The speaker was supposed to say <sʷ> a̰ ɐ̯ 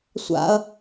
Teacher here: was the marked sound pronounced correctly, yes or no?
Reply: yes